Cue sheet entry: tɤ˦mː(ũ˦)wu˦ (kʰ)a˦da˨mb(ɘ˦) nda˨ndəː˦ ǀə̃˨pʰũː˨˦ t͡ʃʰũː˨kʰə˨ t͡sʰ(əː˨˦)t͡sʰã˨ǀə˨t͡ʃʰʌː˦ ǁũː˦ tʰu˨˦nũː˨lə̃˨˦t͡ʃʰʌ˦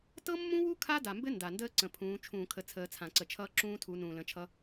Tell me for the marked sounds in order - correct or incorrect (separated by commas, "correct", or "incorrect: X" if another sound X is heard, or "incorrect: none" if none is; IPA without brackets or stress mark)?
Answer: correct, correct, correct, correct